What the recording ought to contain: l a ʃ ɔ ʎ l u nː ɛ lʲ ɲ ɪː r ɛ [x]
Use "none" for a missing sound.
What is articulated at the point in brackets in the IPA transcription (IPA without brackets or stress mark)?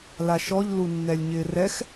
x